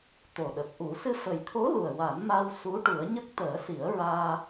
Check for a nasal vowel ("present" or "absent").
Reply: absent